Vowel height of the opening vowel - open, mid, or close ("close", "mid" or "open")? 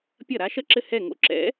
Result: open